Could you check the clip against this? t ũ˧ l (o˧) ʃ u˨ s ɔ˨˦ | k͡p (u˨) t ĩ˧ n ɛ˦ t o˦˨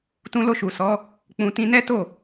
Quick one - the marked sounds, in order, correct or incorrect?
correct, incorrect: ũ˨

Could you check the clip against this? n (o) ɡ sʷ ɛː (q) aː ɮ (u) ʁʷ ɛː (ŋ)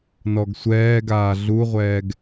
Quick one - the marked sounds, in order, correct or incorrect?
incorrect: ɔ, incorrect: ɡ, correct, incorrect: ɡ

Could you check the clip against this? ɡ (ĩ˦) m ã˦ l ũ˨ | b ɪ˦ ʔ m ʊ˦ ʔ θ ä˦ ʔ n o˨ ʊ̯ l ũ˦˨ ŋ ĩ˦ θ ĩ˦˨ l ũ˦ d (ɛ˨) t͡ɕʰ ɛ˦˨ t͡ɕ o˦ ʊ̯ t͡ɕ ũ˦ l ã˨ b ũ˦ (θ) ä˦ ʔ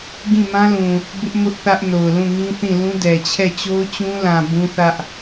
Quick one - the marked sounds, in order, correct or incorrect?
incorrect: ĩ˦˨, correct, correct

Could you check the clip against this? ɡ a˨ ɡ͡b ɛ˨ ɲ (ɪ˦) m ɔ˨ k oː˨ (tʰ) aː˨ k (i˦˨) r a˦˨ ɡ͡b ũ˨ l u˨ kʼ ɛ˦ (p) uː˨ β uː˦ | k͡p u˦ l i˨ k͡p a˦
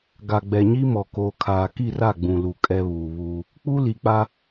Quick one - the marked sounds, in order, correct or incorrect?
incorrect: i˦, incorrect: kʰ, correct, incorrect: β

